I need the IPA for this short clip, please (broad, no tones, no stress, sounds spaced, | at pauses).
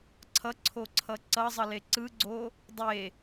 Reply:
ǀʰ ʌ ǀʰ o ǀʰ ʌ ǀ ʌ zˤ ʌ l e ǀ ɯ ɡ͡ǀ o | dˤ e